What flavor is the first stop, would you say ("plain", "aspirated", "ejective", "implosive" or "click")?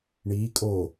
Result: ejective